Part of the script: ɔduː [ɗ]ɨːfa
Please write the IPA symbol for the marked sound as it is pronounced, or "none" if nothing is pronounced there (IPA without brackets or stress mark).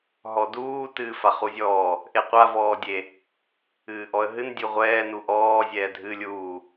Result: t